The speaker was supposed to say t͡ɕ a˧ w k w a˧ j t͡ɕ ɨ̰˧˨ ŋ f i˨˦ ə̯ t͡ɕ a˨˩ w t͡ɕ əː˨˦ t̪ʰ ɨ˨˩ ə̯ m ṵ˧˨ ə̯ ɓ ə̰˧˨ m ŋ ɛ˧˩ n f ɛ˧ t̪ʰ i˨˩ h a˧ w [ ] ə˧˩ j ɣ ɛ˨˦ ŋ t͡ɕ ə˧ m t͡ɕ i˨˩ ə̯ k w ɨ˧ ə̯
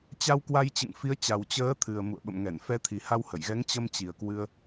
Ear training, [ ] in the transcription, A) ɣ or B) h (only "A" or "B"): B